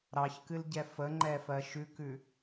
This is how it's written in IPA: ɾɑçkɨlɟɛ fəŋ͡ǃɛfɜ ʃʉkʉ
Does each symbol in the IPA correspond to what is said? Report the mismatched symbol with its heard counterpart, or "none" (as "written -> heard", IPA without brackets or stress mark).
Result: none